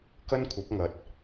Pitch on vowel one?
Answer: high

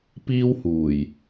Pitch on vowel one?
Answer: high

